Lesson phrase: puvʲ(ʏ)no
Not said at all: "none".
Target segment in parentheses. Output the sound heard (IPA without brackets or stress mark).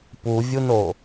u